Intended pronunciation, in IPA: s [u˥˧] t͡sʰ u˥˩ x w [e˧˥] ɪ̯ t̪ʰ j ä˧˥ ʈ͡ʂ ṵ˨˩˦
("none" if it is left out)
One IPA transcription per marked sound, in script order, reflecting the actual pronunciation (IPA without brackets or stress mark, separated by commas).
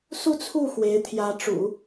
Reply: u˥˧, e˧˥